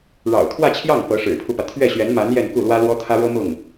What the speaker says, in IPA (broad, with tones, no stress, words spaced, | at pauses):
ɻɑ̰˨˩ʊ̯t̪ʰwä˥˧t͡ɕʰjɑ˥˩ŋ pɤ˧˥ ʂɻ̩˨˩pʰu˦pä˩ t̪ʰɥɛ˥˩ɕɥɛ˧˥nma˧˥n jɛ˥˧nku˥˩lwä˥ lwɔ˥t̪ʰä˥ɻɤ˥ mʊ˥˩ŋ